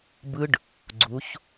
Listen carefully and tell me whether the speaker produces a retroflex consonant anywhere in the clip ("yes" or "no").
yes